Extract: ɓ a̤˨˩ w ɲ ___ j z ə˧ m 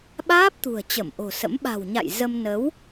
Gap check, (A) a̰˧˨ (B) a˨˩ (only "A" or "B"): A